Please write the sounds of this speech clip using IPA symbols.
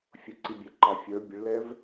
fʲ ʊ ǀ i bʲ ɛ ǃ ɑ fʲ ə˞ bʲ ə ɭ l ɛ v

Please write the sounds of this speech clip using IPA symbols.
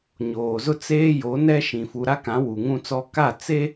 ɲ oː˨ z ʊ˦ t͡s eː˦ j o˨˦ n ɛ˦ ʃ ĩ˨ f u˨ ɾ a˦ k ã˨˦ w u˨ ŋ ũ˦ t͡s ɔ˦ k a˦˨ t͡s e˦

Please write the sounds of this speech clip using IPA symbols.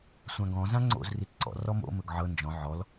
sʷ ã ɡ ɔ̃ z ã ŋ͡ǀ o̰ z r i t ǀ ɔ̰ r ɔ m o̰ m ɵ ɡ ʕ ɤ n d͡ʒ ɔ̃ ʕ ɔ l

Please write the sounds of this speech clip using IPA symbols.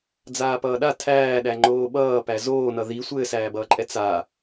d͡z aː p ʌː ɗ a tʰ æː ɗ æ ŋ͡ǃ oː ɓ ʌː p æ z oː n ʌ ð i sʷ ɘː s æː b ʌː ǃʼ ɛ t͡s a

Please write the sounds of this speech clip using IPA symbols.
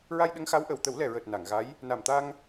ɹ a˧ j ɗ ə˧˥ ŋ x a˧˥ w ʔ ə˨˩˨ w t̪ ə˨˩˦ w l ɛ˨˩ ɹ əː˨˩ t̚ n a˨˩˨ ŋ ɣ a˧˥ j | n a˨˩ m t̪ a˧ ŋ

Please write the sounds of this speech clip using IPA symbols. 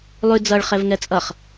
lˠ ʉ d͡z ʌ ɭ χ ɛ v ŋ ɛ t͡sʼ ʌ χ

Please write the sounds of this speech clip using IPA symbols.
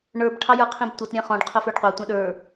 ɳ ə˞ b ʈʰ ɑ j ə˞ qʰ ĩ b tʷ ʌ t ɾʲ ɛ̃ χ ɔ̃ ɖ qʰ ʊ f ə˞ ɖ qʷ ɑ tʷ ɛ̃ ɗ ə˞

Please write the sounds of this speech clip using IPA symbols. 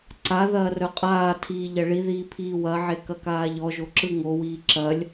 ǀ a ð ɐː r œ qʼ aː tʰ iː ʎ ɐ ɭ i ð iː pʰ iː w ɐ ʕ e k ɐ k aː ʎ ɔ ʒ o ǁ ɯ ŋ o w iː ǁ ɐ lʲ

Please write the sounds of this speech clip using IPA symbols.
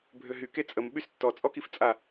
bʱ ø ɦ y k e t͡sʼ ə m ɓ y s tː ɔ t͡sʼ ɔ k i f t͡sʼ a

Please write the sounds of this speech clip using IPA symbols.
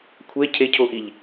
kʷʰ ɛ cʰ e cʰ o ʔ i ʎ

